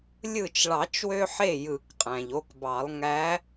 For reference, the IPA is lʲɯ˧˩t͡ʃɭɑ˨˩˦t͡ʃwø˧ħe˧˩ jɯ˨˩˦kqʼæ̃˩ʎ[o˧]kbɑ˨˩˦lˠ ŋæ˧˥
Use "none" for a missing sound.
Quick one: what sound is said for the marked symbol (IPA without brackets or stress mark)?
o˧